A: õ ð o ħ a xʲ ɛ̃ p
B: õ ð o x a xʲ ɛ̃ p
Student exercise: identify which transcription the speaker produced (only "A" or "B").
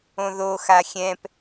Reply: B